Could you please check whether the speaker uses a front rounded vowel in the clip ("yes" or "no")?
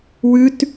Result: no